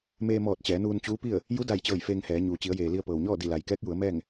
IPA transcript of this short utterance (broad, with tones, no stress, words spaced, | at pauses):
meː˧mɔː˧˩t̚ t͡ɕɛː˩˧nuː˧nt͡ɕuː˧˥pi˥˨ə̯ | ju˧˥da˧˩jt͡ɕɤː˧˩j feː˧ŋhɛː˩˧ ɲuː˩t͡ɕi˩˧ə̯jeː˩li˧ə̯ pɤː˩wɲɔː˥˨ di˧˩la˩j kɛː˧˥k̚ ju˩˧ə̯mɛː˥˨ŋ